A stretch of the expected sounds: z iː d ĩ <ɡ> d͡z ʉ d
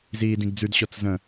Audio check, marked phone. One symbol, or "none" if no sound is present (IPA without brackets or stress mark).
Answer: ɡ